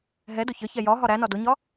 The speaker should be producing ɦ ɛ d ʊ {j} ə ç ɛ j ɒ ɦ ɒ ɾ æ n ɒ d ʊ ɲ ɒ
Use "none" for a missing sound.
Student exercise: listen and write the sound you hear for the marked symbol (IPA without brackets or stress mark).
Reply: ç